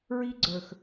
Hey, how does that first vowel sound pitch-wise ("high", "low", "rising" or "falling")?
high